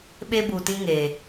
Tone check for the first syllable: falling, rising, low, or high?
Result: high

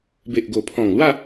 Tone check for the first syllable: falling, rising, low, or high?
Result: low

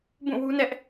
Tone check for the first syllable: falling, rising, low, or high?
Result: falling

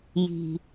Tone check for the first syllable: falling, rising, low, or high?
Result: low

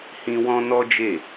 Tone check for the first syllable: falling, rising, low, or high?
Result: high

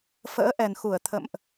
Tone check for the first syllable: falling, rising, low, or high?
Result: rising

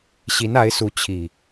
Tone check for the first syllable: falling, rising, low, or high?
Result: rising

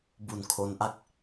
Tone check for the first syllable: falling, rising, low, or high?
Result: low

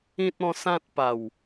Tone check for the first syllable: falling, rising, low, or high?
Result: high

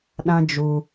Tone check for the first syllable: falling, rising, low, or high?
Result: high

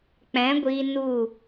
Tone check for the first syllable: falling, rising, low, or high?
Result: rising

